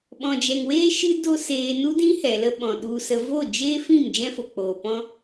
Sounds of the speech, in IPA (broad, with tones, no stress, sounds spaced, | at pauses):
ɓ ɔ̃˨ d͡ʒ ɛ˨ ŋ w eː˦ ʃ ɨ˦ d o˦ s eː˧ n u˦ d ĩ˦ h ɛ˨ l ə˦ ɓ ɔ̃˨ ɗ u˧ s ə˧ v o˦˨ d͡ʒ eː˦ f ĩ˦˨ m d͡ʒ ɛ̃˦ f o˨ k͡p oː˨ p ɔ̃˦